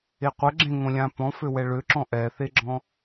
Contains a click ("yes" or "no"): yes